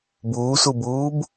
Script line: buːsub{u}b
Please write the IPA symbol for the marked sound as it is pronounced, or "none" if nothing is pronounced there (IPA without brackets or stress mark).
uː